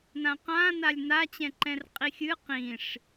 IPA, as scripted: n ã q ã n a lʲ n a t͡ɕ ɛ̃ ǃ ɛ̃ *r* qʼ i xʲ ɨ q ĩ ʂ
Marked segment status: correct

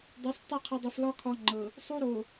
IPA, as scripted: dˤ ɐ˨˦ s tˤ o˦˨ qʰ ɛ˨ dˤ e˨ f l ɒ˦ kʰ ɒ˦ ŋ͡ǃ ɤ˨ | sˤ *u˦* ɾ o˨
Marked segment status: correct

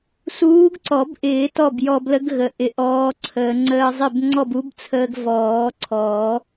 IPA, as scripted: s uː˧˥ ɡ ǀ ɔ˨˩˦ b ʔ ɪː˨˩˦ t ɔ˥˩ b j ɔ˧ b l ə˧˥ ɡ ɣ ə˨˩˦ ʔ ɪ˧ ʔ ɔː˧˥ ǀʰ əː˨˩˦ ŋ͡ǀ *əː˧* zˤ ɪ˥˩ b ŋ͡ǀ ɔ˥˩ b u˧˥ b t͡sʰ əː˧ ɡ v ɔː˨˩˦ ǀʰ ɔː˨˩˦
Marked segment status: correct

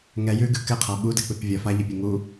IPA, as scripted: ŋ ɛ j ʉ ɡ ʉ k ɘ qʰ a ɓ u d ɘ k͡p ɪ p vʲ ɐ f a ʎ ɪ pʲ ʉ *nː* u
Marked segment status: incorrect: ŋ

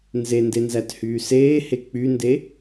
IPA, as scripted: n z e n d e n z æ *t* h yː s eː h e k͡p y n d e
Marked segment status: correct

